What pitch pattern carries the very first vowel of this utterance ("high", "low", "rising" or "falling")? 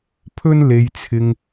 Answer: high